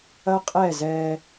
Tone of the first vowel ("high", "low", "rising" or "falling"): high